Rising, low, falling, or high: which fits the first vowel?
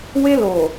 high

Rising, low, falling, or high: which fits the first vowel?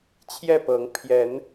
falling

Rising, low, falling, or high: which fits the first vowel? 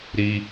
high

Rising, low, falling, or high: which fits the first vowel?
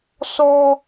high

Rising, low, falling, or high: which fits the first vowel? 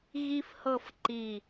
high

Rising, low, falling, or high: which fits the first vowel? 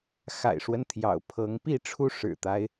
low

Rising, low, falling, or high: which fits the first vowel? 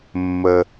high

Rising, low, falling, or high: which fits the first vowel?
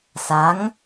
rising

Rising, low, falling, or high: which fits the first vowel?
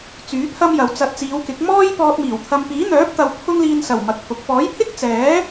rising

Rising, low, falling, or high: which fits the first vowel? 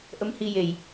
rising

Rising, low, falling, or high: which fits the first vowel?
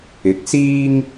rising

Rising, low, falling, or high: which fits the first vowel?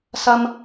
high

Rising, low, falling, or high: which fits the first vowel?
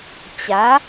rising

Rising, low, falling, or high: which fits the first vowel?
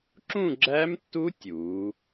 falling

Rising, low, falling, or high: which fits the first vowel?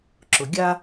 low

